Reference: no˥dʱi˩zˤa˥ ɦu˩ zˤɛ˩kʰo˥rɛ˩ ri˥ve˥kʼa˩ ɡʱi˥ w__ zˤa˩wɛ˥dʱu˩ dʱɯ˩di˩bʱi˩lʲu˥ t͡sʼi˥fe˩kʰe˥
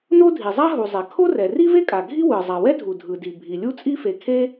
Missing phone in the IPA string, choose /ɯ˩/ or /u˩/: ɯ˩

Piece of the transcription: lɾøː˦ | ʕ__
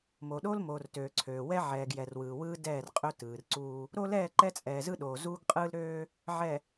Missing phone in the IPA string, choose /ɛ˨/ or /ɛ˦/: ɛ˨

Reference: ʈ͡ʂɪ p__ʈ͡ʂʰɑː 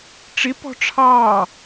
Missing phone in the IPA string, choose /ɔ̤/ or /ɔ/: ɔ̤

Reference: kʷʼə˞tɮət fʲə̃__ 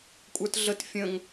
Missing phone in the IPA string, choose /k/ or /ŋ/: ŋ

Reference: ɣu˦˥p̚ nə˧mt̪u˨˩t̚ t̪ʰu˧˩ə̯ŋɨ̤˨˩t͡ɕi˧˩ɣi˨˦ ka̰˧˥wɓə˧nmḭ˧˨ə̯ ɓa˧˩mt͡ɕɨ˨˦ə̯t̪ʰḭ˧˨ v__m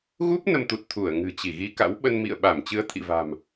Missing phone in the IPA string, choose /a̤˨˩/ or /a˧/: a̤˨˩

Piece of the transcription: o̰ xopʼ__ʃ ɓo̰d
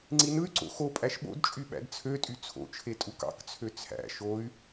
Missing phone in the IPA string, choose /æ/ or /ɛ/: æ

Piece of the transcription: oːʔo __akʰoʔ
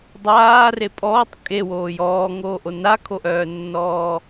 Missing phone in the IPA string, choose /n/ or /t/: n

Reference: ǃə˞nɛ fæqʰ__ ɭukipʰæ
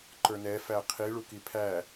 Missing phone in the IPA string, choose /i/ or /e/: i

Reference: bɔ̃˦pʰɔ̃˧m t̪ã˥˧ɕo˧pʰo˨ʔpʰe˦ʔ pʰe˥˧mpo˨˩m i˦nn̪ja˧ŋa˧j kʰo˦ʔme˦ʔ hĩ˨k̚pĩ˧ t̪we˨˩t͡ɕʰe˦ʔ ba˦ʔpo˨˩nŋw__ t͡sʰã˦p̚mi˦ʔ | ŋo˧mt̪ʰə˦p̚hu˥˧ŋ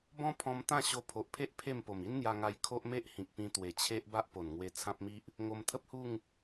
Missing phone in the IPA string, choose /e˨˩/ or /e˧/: e˧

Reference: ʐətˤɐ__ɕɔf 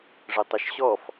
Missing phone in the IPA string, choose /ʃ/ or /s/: ʃ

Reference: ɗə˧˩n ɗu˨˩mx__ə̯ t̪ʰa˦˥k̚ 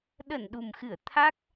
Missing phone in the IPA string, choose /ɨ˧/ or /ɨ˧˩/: ɨ˧˩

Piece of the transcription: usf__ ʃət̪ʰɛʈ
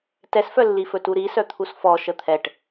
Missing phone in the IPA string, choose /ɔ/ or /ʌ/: ɔ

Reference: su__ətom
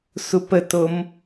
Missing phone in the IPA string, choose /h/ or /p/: p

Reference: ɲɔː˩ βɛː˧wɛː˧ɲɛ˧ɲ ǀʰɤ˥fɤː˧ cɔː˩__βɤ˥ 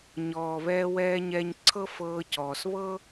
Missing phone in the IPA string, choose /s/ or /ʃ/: s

